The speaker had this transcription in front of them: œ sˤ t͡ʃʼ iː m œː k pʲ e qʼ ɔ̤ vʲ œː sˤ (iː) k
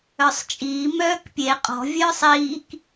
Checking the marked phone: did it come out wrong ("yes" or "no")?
no